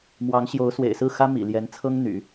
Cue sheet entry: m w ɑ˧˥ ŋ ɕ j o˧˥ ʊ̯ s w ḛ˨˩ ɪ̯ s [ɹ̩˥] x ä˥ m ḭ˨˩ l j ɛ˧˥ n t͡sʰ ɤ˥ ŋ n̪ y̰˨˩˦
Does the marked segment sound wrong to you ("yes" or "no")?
yes